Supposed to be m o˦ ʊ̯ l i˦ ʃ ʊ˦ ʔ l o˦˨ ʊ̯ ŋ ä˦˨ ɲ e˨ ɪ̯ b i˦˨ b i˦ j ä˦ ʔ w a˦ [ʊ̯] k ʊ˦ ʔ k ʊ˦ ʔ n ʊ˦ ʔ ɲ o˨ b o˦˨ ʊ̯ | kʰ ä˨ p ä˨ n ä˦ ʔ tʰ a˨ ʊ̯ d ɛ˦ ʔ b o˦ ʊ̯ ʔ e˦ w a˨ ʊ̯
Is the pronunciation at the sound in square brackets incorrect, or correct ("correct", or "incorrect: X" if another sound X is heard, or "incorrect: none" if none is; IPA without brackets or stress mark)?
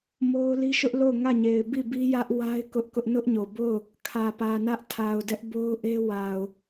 incorrect: ɪ̯